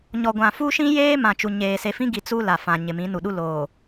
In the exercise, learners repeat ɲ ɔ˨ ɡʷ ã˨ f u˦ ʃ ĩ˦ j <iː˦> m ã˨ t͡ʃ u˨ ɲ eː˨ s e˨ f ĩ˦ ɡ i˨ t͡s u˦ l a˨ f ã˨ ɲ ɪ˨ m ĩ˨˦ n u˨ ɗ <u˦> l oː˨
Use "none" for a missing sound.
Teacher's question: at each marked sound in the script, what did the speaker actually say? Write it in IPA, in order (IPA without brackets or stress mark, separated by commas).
eː˦, u˦